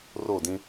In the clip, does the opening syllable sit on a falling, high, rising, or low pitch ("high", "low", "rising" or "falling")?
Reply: falling